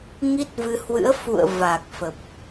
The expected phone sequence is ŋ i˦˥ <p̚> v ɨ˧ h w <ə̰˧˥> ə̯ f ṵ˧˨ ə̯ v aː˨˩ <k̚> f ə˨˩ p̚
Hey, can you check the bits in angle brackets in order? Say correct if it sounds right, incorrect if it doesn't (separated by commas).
incorrect, incorrect, correct